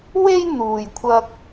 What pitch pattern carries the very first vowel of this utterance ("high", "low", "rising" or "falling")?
high